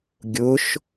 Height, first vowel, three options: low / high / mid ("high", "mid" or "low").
high